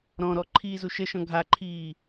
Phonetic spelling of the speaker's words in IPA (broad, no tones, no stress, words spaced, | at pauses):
ɾɔ̃ɾɔ ǃʰiːzuʃəʃɔ̃ ɡʱaǃʰiː